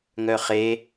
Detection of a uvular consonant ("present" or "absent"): present